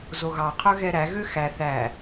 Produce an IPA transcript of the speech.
z o ɣ ɑ qʰ œ ɣ ɛ ɾ æ ɣ ø x æ θ æ

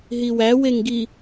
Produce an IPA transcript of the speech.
ɦ i w æ w e ŋ ɡ i

